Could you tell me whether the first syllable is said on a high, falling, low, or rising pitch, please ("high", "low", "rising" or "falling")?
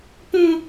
high